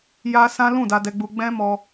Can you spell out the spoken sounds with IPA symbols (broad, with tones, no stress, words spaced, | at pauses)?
ja˧ sã˦ lũ˦˨da˧dɛ˧ɡ͡bu˧ ɡ͡bɛ̃˦mɔ˧